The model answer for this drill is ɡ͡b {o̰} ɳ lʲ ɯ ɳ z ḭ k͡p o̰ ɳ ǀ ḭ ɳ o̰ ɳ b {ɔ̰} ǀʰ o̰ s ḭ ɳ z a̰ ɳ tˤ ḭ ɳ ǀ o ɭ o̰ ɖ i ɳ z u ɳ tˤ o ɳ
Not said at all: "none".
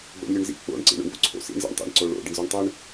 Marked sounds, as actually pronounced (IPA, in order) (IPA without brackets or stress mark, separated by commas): o̰, o̰